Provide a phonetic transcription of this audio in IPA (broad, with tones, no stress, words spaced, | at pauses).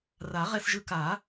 ra˨˩˦ʁɛ˧sʒɯ˧ ka˨˩˦